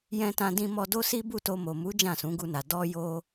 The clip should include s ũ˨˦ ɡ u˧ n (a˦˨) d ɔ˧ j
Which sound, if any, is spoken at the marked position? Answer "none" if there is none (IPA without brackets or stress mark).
a˨